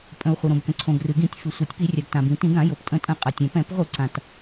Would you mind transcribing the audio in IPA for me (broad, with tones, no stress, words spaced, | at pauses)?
pʼə̃˩u̯ χʷə˩ɾõ˩bkə̃˩ ǀʰõ˩ɡrɨ˩ɡĩ˧˩˧tʲ fɨ˩sʷi˩tʲ pi˧˩˧rʲa˩ɡ tã˩bĩ˩tĩ˧˩˧ɡ ã˧˩˧jo˩ptʼə̃˧˩˧ tʼə̃˧˩˧qʼa˩tʲɛ̃˩pɛ̃˧˩˧p ʁʷɨ˧˩˧ǀã˩t